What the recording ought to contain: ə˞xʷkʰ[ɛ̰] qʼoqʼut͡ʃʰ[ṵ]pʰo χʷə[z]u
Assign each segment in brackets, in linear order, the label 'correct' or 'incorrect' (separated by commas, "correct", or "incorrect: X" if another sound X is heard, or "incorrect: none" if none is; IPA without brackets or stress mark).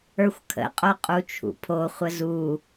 incorrect: ə̰, correct, correct